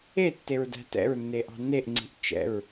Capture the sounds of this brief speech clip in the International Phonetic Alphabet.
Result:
etːeɹdæ̤ tɛ̰ɹnːeʔɑ̤ neʔŋ͡ǀi̤ʔ t͡ʃɛ̰ɹ

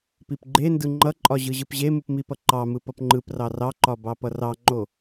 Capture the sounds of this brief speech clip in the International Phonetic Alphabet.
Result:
pipɡ͡ǃendɯ ŋ͡ǃʌǃʼɒ ʑɯʑɯpʑemɯp mipʌǃɑmɯ pʌpŋ͡ǃɯprɑ rɑǃɒ bɑpʌrɑŋ͡ǃo

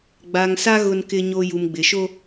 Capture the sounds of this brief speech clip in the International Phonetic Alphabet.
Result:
ɡ͡ba˨ŋsa˦ ɣʊ˦nkɪ˦ɲo˦ ju˨mɡ͡bɪ˨ʃo˦

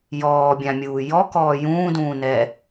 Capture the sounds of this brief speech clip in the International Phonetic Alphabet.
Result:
jɔːbʲãmʲuː jɔkɔː jũːdũːnɛ

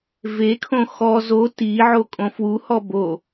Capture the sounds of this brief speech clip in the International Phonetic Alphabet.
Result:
vekʰõ xɔ zo ti ʕokʼõfwuhɔ bo

